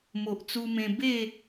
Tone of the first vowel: low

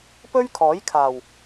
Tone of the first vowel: high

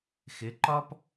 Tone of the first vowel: rising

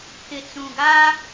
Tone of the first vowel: low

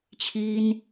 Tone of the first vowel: high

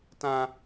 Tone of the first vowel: high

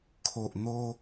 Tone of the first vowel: low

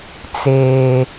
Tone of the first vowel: high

